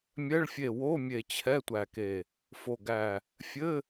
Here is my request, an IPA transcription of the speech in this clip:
mʲ ɛ˧˥˧ ɭ fʲ e˧˩ w o˧˥˧ mʲ e˧˩ t͡ɕʰ ɛ˧˥˧ tʷ æ˧˩ k e˧˩ | f o˧˩ ɡ æ˧˩ | fʲ ɘ˧˥˧

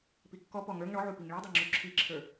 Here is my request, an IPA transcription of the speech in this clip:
p i kː ɔ p ɔ ŋ ə˞ ŋ ɳ ɔ ʕ u p i ŋ ɭ i dˤ i ŋ͡ǁ u ǁʰ i ǁʰ ə˞

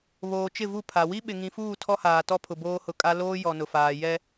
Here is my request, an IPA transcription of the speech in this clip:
β oː˨ t͡ʃ ɪ˦˨ v u˦˨ pʰ a˨ w i˦ ɓ ɪ˨ ŋ ĩ˨ f uː˦˨ tʰ ɔ˦ h aː˨ t ɔ˦ pʰ ʊ˨ b oː˦ h ʊ˨ kʼ a˦ l oː˦ j ɔ˨ n ʊ˨ f aː˨ j ɛ˦

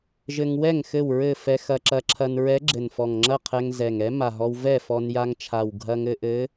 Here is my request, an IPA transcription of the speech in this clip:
ʒ ɘ˧ ŋ w ɛ˥˨ ŋ x ɘ˥˨ w ɹ ɘ˥˨ f ɛ˧ x ɐ˧ ǁ ɐ˧˥ ǁʰ ɐ˧ n ɹ ɛ˧˥ ɡ͡ǁ ɘ˨˩ n f ɔ˨˩ ŋ ŋ͡ǁ ɐ˥˨ qʰ ɛ˧ ŋ z ɛ˨˩ ŋ ɛ˧˥ m a˨˩ ɦ ɔ˧ w v ɛ˥˨ f ɔ˧ n j a˧ ŋ t͡ʃʰ a˨˩ w ɡʱ ɐ˧ ŋ ɘ˧ ʔ ɘ˧˥

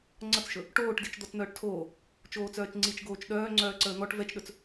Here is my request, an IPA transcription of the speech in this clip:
ŋ͡ǀ ʌ t͡s ʃ ɵ | ʈ oː ʈ d i t͡ʃ d̪ ɔ t͡s n̪ œː ʈ tʰ oː | t͡ʃ oː t͡s œː t͡ʃ ŋ͡ǀ i t͡ʃ ɡ oː t͡ʃ ɗ œː ŋ͡ǀ œː ǀ əː n̪ ɔ ʈ v ɛ t͡ʃ ɗ ɵ t͡s

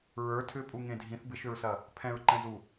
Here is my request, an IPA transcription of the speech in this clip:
ɹ ə˞ tʰ ʏ pʼ u ŋ ẽ dʱ ĩ θ b ɪ ʃ ʏ ɹ s ɐ | pʰ ɛ̃ ɹ ǃ ɛ̃ z u

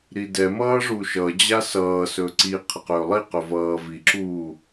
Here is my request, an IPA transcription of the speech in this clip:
ɾ i d ɛ m ʌː ʐ u ʃ ʌ d͡ʑ a s ʌː s ɵ ǀ i qʰ ə q ɵː lˠ i q ɵ v ʌː v i ǁ uː

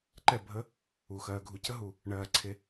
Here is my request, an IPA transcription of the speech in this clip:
ǃ ɛ˥˩ bʱ ə˦˥ | u˨˩ x ɜː˧ ɡʱ u˧ c ə˦˥ ɦ u˨˩ | ɳ ɜː˨˩ ǀʰ e˧

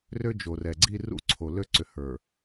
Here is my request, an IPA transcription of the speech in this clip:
r ø˦ d͡ʒ o˨ r ɛ˨ ɡ͡ǀ i˦ r ṵ˦ ǀʰ o˨ l ø˦ ǀ ʏ˨ h ə˞˨

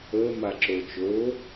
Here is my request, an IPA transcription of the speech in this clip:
əː m a ǁ o t͡ʃ o

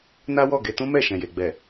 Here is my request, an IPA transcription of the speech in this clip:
n a˦ w ɔ˦˨ ɡ e˧ t ũ˦ m ɛ˦˨ ʃ ɛ̃˨ j e˨ ɡ͡b ɛ˨

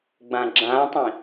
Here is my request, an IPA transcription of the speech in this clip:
ɡ͡b ã ɡ͡ǁ ã tˤ ĩ

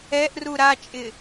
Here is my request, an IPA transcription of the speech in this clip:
ɛ ʔ r u ɾ a t͡ʃʼ ɪ

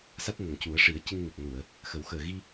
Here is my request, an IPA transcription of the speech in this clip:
s a˦˥ t̚ n ə˨˩ ŋ c u˨˩˦ ə̯ ʂ i˨˩˦ ə̯ c ɨ˧ ŋ n i˨˩ k̚ n u˨˩˨ ə̯ | x ə˨˩˦ w x əː˨˩ ɣ i˧

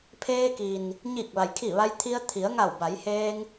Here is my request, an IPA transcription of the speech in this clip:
pʰ eː˧ k i˩ n | ɲ i˧˩ k̚ ʋ a˩ j kʰ i˧˩ ʋ a˧ j t̪ʰ i˧ ə̯ t̪ʰ i˩˧ ə̯ ŋ a˧˩ w b a˩˧ j h eː˧ ŋ

